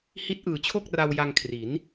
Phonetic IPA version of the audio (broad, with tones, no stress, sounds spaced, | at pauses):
h i˦˥ t̚ ʔ ɯː˨˩ t͡ɕʰ o˥˩ k̚ r a˧ w j a˧ ŋ kʰ r i˩˦ n